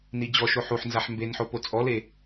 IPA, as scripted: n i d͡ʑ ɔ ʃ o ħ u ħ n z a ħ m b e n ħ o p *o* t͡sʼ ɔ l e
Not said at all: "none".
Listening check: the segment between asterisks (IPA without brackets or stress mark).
o